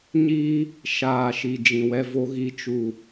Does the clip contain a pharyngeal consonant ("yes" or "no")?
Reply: no